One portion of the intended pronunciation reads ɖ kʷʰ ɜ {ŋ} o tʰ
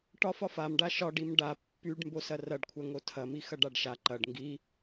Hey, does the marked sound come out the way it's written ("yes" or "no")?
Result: yes